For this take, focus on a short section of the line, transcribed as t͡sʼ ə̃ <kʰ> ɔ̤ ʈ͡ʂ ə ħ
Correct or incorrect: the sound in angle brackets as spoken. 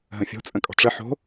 incorrect: kʼ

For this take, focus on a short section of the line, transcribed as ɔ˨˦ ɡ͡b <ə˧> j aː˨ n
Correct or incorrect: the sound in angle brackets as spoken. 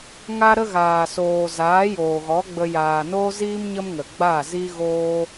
correct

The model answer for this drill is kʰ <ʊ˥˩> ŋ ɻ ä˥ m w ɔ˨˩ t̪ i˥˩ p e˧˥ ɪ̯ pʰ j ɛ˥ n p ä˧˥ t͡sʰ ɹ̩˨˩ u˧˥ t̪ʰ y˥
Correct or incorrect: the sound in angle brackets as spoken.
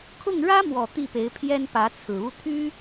correct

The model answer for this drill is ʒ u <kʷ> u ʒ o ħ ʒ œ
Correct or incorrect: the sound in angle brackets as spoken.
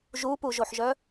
incorrect: p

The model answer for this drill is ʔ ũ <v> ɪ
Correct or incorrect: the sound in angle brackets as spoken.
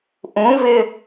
correct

